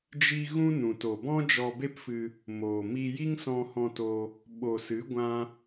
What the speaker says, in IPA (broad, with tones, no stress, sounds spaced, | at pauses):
d͡ʒ i˧ ɣ ũ˦ n ũ˨ t o˨ b ɔ̃˦ d͡ʒ ɔ˧ b e˦ p f ɨ˧ | m oː˨ m i˧ j i˦ ŋ s ɔ̃˧ h ɔ̃˧ t o˧ | ɓ o˨ s ɨ˨˦ ɡʷ ã˦